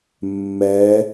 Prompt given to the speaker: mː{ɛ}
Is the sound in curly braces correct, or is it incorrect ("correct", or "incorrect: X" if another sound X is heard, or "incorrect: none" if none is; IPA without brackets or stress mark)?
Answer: correct